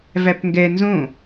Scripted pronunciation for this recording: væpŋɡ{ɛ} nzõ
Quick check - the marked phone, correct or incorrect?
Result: correct